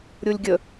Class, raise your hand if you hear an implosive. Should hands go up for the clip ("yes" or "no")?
no